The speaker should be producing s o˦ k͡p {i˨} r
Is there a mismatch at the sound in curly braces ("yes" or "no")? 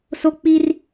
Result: yes